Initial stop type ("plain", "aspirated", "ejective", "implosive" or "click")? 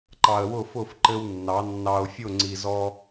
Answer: click